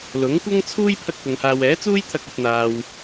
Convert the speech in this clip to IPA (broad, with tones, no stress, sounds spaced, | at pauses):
l ʊ˨˥ ŋ kʷ ɐ˥ ŋ t͡sʰ uː˥ j pʰ ɐ˥ k̚ p ʊ˨˧ ŋ h aː˧ w ɛː˨˥ t͡s uː˥ j t̪ʰ ɐ˧ k̚ ɵ˧ t̚ n̪ aː˧ w